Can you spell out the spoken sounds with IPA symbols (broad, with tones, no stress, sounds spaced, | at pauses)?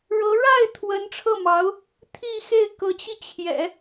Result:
ɻ ɤ˧˥ ɻ a˥˩ ɪ̯ t̪ʰ w ə˧˥ n ʈ͡ʂʰ ɤ˥˩ m ɑ˧˥ ʊ̯ | t̪ʰ i˥˧ x e˥˩ ɪ̯ k ɤ˧˥ t͡ɕ i˧ t͡ɕʰ j ɛ̰˨˩˦